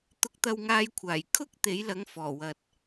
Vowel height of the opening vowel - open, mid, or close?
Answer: close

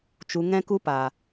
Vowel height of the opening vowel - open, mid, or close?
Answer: close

